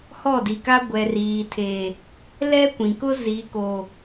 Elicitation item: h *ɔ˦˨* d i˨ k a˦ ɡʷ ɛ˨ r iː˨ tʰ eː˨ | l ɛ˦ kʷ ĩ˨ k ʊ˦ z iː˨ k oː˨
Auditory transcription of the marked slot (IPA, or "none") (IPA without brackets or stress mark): ɔ˦˨